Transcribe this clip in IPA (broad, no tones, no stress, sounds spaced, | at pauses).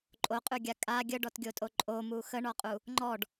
ǃʼ o qʼ ʉ ɡʲ a kʼ a ɡʲ ə ɖ ɔ t ɡʲ o tʼ o ǃʼ o m u x ə ɳ ɔ qʼ u | ŋ͡ǃ ɔ ɖ